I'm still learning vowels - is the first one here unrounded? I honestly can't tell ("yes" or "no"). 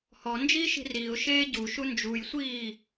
no